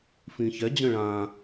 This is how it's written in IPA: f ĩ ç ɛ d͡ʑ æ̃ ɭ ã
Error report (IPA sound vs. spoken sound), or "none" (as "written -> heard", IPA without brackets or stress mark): æ̃ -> ə̃